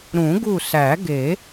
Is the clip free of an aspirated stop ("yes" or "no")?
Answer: yes